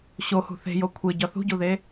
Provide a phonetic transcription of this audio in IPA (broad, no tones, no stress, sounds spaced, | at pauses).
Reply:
ɕ o h ṳ θ e̤ j o kʷʰ e ɟ ɒ θ ṳ ɟ u ð e